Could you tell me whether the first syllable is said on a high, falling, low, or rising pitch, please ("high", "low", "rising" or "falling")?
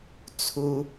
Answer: low